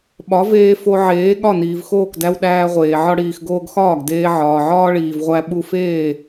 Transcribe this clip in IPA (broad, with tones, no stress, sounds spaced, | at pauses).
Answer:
ɓ ɒ˩˥ v eː˧ f o˧ ʕ eː˩˥ ɠ ɒ˥˩ n iː˩ v x oː˥˩ k d æ˧ w ɗ æː˧ ʁʷ eː˩ ʕ ɒ˧ ɽ iː˩ x ɡ oː˧ ɡ x ɒː˥˩ ɡ d eː˧ ʕ ɒː˩ ʕ ɒː˥ ɭ iː˩ v ʁʷ æ˧ ɓ u˧ f eː˥˩